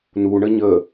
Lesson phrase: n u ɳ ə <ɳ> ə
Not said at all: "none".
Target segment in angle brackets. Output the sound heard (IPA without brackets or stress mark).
ɲ